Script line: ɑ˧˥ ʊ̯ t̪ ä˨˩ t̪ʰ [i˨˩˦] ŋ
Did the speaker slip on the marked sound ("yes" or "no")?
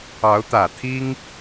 yes